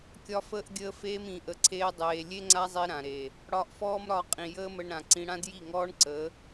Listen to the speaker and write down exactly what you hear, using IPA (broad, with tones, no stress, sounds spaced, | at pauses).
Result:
kʲ ɒ˦ f əː˦ ʔ ɡʲ əː˦ f eː˦ m ĩ˨˦ ʔ ə˧ ǀʰ eː˦ dˤ eː˧ lʲ e˦ ŋ͡ǀ a˦ zˤ i˧ ɾ ã˨ ɾ e˨ | ɽ ɒ˧ ʔ f ɔː˦ m ɾ ɒ˧ qʼ ĩ˨ j əː˦ m ə˧ ɳ ɾ ã˨ ǀ ĩ˧ ɽ ã˦ d j i˦˨ ŋ ɔː˦ ɳ ǀ ə˨˦